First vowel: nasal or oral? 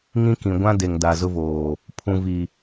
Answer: nasal